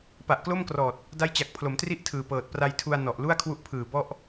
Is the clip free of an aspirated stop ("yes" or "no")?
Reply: no